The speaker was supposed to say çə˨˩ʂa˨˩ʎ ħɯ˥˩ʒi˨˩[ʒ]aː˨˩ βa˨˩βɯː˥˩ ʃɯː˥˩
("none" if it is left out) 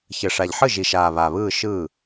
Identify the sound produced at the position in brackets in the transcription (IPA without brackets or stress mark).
ʃ